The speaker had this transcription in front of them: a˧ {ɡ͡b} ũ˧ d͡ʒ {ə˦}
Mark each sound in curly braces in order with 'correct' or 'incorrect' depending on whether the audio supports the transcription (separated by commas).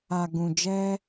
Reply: incorrect, incorrect